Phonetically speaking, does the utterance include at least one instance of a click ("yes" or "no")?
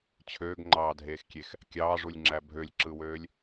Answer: yes